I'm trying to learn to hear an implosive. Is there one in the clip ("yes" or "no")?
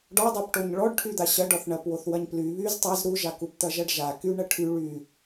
no